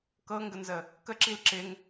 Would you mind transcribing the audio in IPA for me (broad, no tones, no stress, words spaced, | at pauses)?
kɤŋɡənzə | kəǁil ǁɪŋ